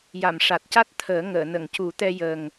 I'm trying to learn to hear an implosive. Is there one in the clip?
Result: no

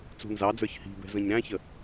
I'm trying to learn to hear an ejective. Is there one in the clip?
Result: no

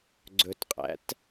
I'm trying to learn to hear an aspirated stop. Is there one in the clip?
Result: no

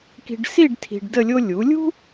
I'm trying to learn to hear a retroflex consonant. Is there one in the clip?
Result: yes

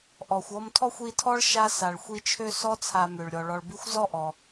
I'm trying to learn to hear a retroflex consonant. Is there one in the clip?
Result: yes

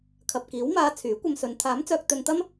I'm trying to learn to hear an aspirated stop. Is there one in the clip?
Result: yes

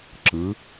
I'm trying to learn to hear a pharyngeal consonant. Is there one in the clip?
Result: no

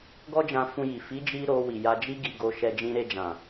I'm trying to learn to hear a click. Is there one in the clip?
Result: no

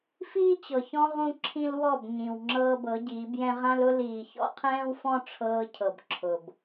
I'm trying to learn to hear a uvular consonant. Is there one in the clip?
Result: yes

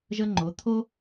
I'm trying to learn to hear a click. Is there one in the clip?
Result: yes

